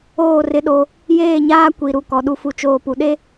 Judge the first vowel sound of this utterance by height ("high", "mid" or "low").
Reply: mid